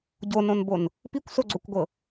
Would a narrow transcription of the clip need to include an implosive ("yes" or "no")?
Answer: no